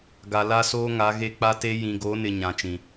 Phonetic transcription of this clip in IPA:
ɡa˨la˦soː˦ ŋa˨˦ɣe˦k͡pa˦te˦ jĩ˨ɡo˨˦nɪ˨ ɲã˨t͡ʃĩ˨

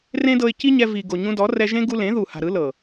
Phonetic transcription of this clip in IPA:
rẽ˦dɤ˧ɪ̯ ci˦ɲɛ˧ vi˨ ɡo˨ɲũ˧dɔ˨˦ rɛ˧ʒẽ˦ ɡu˧lẽ˨˦ðu˨ha̤˨ ɾɯ˨˦ lɤ˨

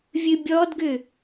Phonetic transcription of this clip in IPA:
vʲɨbʲɔdɡʏ

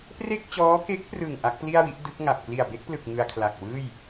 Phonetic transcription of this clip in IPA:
pre˥˩k̚t͡ɕɔː˦˥ke˦˥k̚prɯ˨˩ŋ ʔa˦˥k̚pli˥˩a̯wi˦˥ʔ dɯ˦˥k̚ŋa˨˩p̚ kli˨˩a̯be˦˥k̚plɯ˨˩k̚ ŋɯ˧a̯kʰla˨˩k̚wɯː˥˩j

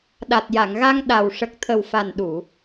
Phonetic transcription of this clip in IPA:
ɗa˨˩t̚ja˨˩˨ŋɣa˧ŋ ɗa˨˩w ʂə˨˩k̚t̪ʰə˨˩wfa˨˩n ɗu˨˩˨

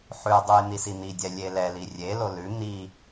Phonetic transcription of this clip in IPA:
ħʉdˤʉj n̪isin̪idʲɛ lʲelɛli rʲelo lʉ n̪i

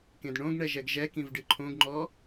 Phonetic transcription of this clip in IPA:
kẽdɳõɡɳɛ ʒɛɡʒɛkĩv ɖɨǃʰõɡŋ͡ǃɔ

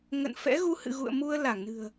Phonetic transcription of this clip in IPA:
ŋə̰˧˨n fɛ̰˧˥ɣu˧ hɨ̰˧˨ɣṵ˧˨ə̯mu˧ə̯ la˧˩ŋnɨ̤˨˩ə̯

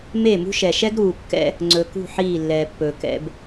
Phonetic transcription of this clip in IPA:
me˦˨mṳ˦ʃɛ˨ ʃɛ˦ɡɾuː˨kːɛ̰˦ | ŋ͡ǀɵ˨kṳ˦˨ ħiː˦˨lːɛː˨pːɵ˨ kɛ̰˨b

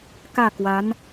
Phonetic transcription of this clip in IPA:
kä˥˩kwa˧˥n

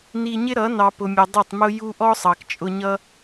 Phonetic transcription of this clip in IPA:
ni˧ɲɪ˦ɾʌ˨˦ nɑ˨ pʊ˨mʲə˨ dˤʌ˦˨tˤmʊ˦ju˦ ʔɔ˦sˤɑ˨kt͡ʃʼʊ˧ɲʌ˦

